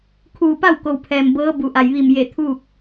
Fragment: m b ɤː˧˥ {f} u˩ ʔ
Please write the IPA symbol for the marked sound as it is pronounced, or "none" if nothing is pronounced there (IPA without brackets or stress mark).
b